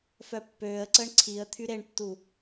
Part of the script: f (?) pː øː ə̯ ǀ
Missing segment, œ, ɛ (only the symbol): œ